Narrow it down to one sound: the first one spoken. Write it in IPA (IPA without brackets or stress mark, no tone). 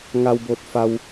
ŋ